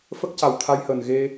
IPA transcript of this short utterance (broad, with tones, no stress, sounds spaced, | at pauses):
f ə˦˥ k̚ c a˨˩ w t̪ʰ a˧ j h əː˨˩ n ɣ e˧